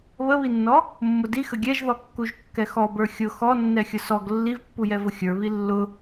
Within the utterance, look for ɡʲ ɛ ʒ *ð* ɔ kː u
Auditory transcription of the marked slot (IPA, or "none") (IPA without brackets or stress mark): ð